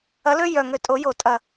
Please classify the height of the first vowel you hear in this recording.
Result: low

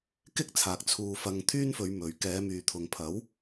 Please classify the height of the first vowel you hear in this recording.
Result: high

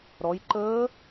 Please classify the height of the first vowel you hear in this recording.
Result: mid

